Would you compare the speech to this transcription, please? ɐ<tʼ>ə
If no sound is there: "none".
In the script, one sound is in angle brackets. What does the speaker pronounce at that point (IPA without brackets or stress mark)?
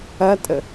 tʼ